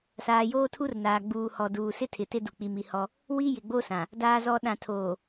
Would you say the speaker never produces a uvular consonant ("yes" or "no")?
yes